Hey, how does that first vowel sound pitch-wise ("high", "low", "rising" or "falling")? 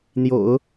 low